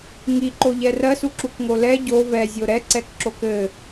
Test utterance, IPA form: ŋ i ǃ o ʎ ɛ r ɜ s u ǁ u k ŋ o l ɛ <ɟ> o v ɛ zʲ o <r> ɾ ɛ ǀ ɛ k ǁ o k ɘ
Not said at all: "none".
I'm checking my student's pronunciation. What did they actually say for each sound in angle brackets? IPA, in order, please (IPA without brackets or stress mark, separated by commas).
ɟ, none